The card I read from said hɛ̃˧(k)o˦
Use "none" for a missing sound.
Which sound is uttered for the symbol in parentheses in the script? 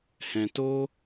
t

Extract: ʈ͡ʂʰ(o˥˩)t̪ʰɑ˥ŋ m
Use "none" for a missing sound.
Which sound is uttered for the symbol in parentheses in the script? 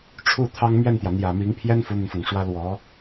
u˥˩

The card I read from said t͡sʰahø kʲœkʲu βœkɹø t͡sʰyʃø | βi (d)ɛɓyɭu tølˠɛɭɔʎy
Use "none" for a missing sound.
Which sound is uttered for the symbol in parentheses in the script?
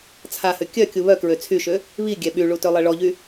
ɡʲ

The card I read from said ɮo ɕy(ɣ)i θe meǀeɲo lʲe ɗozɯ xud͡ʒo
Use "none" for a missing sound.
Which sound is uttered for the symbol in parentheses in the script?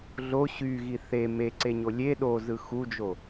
ɣ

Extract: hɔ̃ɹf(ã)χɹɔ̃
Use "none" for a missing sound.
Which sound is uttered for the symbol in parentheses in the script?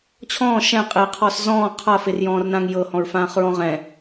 ãː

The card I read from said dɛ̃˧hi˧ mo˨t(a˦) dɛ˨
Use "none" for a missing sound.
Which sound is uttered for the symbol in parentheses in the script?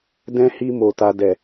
a˧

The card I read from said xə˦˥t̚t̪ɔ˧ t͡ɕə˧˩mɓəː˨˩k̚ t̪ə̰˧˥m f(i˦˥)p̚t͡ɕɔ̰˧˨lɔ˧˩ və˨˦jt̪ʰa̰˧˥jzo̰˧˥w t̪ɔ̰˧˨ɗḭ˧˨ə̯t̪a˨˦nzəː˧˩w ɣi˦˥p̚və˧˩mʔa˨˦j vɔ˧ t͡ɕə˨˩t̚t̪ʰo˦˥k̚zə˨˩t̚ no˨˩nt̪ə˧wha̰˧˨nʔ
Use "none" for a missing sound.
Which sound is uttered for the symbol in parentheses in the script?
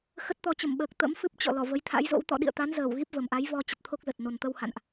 ɨ˦˥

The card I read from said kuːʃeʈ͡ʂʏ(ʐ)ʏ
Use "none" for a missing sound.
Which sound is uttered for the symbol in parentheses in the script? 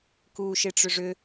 ʐ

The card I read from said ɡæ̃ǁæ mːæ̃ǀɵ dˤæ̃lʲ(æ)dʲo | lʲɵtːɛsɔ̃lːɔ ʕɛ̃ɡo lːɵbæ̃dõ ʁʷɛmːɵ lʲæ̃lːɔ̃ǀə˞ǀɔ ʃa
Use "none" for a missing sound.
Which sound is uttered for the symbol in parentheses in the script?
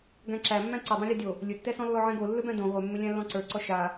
a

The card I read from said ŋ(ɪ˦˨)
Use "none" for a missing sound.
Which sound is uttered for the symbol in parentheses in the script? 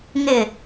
ɪ˦˨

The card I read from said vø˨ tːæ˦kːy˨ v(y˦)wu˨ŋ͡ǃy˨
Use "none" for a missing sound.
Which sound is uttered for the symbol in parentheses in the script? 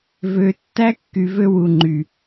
ø˦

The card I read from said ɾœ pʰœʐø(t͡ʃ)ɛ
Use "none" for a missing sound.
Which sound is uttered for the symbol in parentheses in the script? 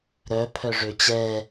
t͡ɕ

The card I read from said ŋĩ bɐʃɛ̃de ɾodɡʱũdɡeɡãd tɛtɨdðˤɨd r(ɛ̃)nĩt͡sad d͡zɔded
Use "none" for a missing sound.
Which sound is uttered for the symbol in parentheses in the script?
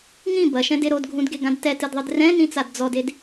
ɛ̃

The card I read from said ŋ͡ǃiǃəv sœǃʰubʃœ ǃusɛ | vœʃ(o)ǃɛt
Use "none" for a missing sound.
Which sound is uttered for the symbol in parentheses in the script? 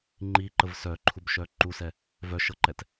ɤ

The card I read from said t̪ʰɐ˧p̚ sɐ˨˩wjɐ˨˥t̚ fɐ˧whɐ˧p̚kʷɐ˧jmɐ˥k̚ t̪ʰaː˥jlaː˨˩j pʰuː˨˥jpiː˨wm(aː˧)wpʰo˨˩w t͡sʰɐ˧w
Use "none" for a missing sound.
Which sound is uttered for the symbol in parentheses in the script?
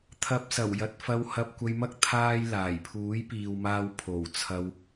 aː˧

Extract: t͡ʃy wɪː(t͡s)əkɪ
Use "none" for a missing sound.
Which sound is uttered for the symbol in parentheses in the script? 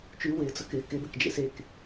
t͡s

